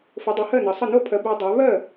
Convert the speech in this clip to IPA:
f ə˩˥ dˤ e˩˥ h ɜ˥˩ n ʌ˩˥ sˤ ʌ˥˩ n o˥˩ pʰ ɜ˩˥ b ɜ˩˥ dˤ a˩˥ β ɜ˥˩

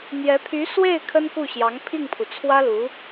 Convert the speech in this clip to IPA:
n̪ j ɛ˧˥ pʰ y˧˥ s w e˥˩ ɪ̯ kʰ ə˥ n k u˥˩ ɕ j ɑ˧˥ ŋ pʰ i˥˩ ŋ pʰ u˩ t͡sʰ w ä˥ l u˧˥

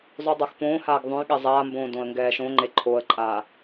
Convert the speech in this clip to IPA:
zˤ ʉ dˤ a x p õː h aː ɡ ðˤ õ j ɠ ɛ zˤ aː m b õː d õ ə̯ ŋ ɡ ɛː ʃ õ ŋ͡ǃ e ǃʰ o ə̯ ǃʼ aː

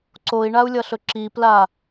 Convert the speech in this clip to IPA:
ǀ o i̯ ɳ a u̯ lʲ ʌ ɬ ɵ ǁ i p l a

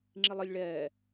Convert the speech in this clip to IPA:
ŋ͡ǁ i lˠ ə lʲ ɭ ɛː

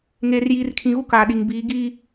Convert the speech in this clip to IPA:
ŋ eː˨ r j iː˨ r kʰ ĩ˨ ɣ u˦ k aː˨ ɗ i˨ ŋ b iː˨˦ ɡ iː˦

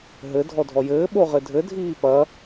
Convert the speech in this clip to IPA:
ɦ ɘ dʱ ɔ dʱ ɔ j ɘː ɓ o ʁ ɘ dʱ ɘ dʱ iː p ɐ

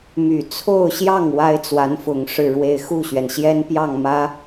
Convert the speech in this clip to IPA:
m y˨˩ t͡sʰ o˥˧ ʊ̯ ɕ j ɑ˥˩ ŋ w a˥ ɪ̯ t͡s w a˧˥ n f ʊ˨˩ ŋ ʂ ɻ̩˥˧ ɻ w e˥˧ ɪ̯ x u˥˩ ɕ ɥ ɛ˩ n ɕ j ɛ˥ n p j ɑ˥˩ ŋ m ä˧˥

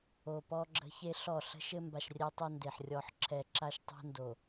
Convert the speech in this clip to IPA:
o˨ p ɔ˦ ɡ͡ǁ ə̤˦ ç e˦ ɬ ɔ˦˨ ɬ ə̤˦ ʃ ɘ˦ m b a˨ ʃ rʲ ɛ˦ tˤ ɘ˦ n d e˨ ħ rʲ ɔ˨ ħ ǁʰ ɛ˨ ǁ a˦ ʃ tˤ e̤˦ n d o˨

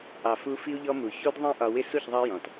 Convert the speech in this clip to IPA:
ʔ ɑ˨ f u˧ f i˧ u̯ ʎ ɔ˧ m u˨ ç u˦ d ðˤ ĩ˦ ʔ ɒ˧ w ɪ˦ s u˦˨ ç ðˤ ɑ˦ j ɔ̃˨ t

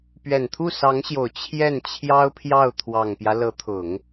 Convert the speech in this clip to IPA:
p ɥ ɛ˨˩ n t̪ʰ u˥˩ s ɑ˧˥ ŋ ɕ j o˨˩ ʊ̯ t͡ɕʰ j ɛ˥˩ n t͡ɕʰ j ɑ˥ ʊ̯ pʰ j ɑ˥˩ ʊ̯ t̪ʰ w ɑ˨˩ ŋ p j ä˦ l ɤ˧˥ t̪ʰ ʊ˨˩˦ ŋ

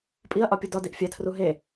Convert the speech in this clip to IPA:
pʼ i ɐ̯ ʔ ɒ pʲ u d ɒ d i ʔ fʲ æ tʰ r u ɦ e

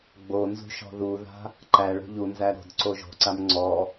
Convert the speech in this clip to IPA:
ɡ͡b o n z ṳ ʃ ɔ̤ ð u ð a̤ | ǃ æ ɭ o̤ ʎ u n z æ ɾ o̤ d ǀ o ʒ o̤ ǀ a m ŋ͡ǀ ɔ

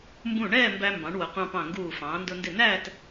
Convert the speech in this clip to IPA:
m b ũ˧˩ ɳ ɛː˥˧ m b æ˧ m b ɑ̃˩˧ ɳ w ʊ˩˧ qʷ ɑ̃˧ p ɑ̃˧˩ ŋ ɡ uː˧˩ f ɑ̃ː˩˧ n d ʊ˧ n d ɪ˧˩ n æː˥˧ t

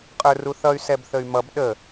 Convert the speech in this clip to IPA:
qʼ ə˞ r u θ ʌ y̯ s ɛ b θ ə y̯ m ʌ b ɗ ə

